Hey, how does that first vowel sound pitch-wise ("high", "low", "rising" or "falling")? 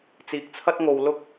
low